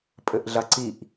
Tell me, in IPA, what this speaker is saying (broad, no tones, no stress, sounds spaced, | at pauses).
pʼ ɘ ʔ ɮ ɐ ǀ i ʔ